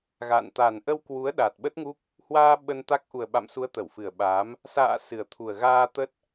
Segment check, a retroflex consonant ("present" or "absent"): absent